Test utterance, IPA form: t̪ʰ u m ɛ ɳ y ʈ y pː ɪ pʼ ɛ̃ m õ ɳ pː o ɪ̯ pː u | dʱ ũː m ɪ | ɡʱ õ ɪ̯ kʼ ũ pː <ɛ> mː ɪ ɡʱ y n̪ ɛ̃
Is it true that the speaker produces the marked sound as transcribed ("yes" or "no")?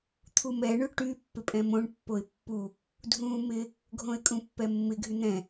yes